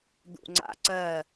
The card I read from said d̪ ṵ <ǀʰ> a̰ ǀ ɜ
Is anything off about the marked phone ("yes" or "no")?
yes